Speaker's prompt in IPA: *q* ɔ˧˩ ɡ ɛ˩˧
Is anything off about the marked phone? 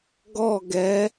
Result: yes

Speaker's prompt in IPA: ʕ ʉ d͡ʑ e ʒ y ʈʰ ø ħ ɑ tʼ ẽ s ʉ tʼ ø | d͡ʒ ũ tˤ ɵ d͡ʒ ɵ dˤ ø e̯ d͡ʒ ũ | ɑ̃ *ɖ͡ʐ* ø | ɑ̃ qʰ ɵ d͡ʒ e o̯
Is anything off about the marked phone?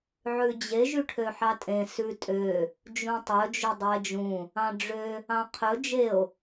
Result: no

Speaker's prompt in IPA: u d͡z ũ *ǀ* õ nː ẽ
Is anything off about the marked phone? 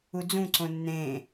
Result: no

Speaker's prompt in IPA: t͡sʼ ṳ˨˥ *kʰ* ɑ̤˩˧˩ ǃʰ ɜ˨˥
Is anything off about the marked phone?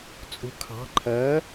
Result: no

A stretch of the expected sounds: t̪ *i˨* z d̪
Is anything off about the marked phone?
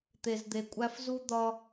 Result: yes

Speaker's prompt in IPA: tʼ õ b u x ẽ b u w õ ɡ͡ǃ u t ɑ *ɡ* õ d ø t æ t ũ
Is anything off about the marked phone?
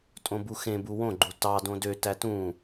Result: yes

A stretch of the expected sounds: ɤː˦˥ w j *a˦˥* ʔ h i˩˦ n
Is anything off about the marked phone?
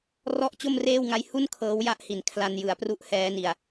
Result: no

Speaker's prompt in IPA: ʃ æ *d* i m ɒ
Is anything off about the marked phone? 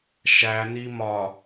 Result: yes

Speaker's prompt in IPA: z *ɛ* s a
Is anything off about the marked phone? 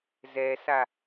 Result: no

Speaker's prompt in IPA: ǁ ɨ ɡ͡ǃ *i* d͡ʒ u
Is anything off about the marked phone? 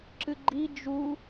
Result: no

